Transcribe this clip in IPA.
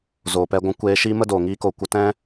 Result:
z oː˨ p ɛ˧ ɡʷ ũ˧ kʷ eː˧ ʃ iː˦ m ə˦ d oː˨ ŋ iː˧ k o˨ kʷ ə˧ t ɛ̃˦

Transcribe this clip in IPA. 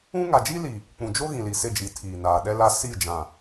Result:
ũ˦ ŋ a˨ d͡ʒ i˦ l i˨ | k͡p ũ˨ d͡ʒ o˦ ɣ ĩ˨ l i˨ s ɪ˦˨ d͡ʒ i˨ tʰ iː˨ n aː˨ ɗ ɛ˦ l a˦ s i˦˨ d͡ʒ ã˨

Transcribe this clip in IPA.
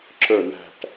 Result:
ǁ ə˞ n æ̤ ʈ

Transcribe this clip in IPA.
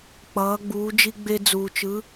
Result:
k͡p ʌː˩˧ ɡ͡b uː˩˧ d͡ʒ i˧ ɡ͡b e˧ d͡z uː˩ t͡ʃ ɯ˩˧

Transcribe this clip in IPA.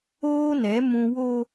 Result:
oː˦ n ɛ˨˦ m ũ˦ w o˦

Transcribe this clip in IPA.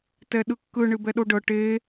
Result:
t ɛ ɗ ɯ kː ɯ ɳ ɨ b ɛ ɗ o ɖ ɤ ʈ e

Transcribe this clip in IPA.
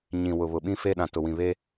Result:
ɲ ĩ˨ w ʊ˨ β ʊ˨ ɓ ĩ˦ f e˦ ɗ ã˨ t ʊ˨ w ĩ˨ β e˦

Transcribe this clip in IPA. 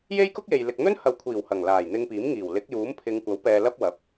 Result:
j e˥ j k ʊ˥ k̚ j e˨ j l ɪ˨ k̚ n̪ ɵ˥ n h ɐ˨˧ w kʷʰ iː˨˩ w h ɐ˨˩ ŋ l aː˨˩ j n̪ ɪ˧ ŋ p iː˨˥ m ŋ iː˨˩ w l ɪ˨˥ k̚ j uː˨˥ m pʰ ɪ˨˧ ŋ kʷ ɐ˨˥ w p ɛː˧ l ɐ˥ p̚ w ɐ˨˥ p̚

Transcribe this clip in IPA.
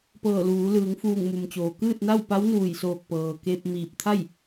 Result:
p ɤː˧˩ l uː˩˧ l ɯː˩˧ ŋ f uː˧˩ ŋ m u˩ m t͡ɕ oː˩ k ɯː˥˨ t̚ n a˥˨ w p a˧˥ w n uː˧˩ j s oː˧˩ k̚ p ɤː˩ k e˧ p̚ m iː˧˩ p̚ t̪ʰ a˥˨ j

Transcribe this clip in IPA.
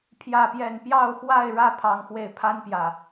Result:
pʰ j ä˥˨ p j ɛ˥˨ n p j ɑ˥˨ ʊ̯ x w a˥˨ ɪ̯ ɻ ä˥˨ pʰ ɑ˦ ŋ x w e˥˨ ɪ̯ pʰ a˦ n p j ä˨˩

